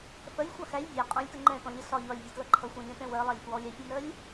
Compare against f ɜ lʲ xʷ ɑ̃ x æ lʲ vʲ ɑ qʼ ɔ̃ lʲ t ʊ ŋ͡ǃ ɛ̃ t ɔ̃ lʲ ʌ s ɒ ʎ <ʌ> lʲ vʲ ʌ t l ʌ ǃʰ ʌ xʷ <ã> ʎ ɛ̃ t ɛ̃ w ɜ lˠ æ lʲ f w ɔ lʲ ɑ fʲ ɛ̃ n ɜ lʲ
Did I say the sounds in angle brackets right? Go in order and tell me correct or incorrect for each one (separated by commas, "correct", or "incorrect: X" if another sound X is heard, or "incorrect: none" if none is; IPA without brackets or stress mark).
incorrect: ɒ, incorrect: ɑ̃